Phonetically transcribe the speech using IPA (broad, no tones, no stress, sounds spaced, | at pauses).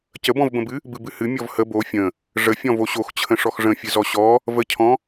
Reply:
c ə b ɔ̃ v b ə̃ b ɨ | b ɨ b ɨ h ɨ mʲ ɔ v h ə b o fʲ ə̃ | ʐ ə fʲ ɔ̃ v o ɕ o x t͡ɕʰ ə̃ ʂ ɔ x ʐ ə̃ fʲ ɨ z ɔ ɕ ɔ | v ə cʰ ɔ̃